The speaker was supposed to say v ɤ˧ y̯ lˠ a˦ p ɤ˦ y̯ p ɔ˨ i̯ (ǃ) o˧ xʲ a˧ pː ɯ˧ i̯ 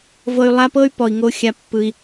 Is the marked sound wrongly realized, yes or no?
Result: yes